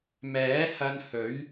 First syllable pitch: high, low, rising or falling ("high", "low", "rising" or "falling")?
rising